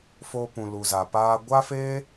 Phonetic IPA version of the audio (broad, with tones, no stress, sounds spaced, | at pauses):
f oː˧ p ũ˨ l u˨ z a˨ p aː˦ ɡʷ a˦ f eː˦